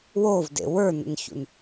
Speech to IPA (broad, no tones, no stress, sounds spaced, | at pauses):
w o v d ḛ w ə˞ n ə̰ n ç ṵ n